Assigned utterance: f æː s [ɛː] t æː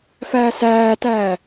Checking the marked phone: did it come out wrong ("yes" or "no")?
yes